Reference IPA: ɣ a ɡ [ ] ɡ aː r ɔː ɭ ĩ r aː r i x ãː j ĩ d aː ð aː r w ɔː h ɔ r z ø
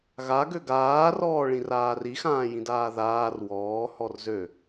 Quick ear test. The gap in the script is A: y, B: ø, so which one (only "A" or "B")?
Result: B